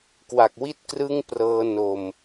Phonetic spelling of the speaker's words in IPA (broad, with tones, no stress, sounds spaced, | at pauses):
k w a˨˩ k̚ w i˥˩ t̚ k r ɯ˥˩ ŋ p r ɤː˧ n o˨˩ m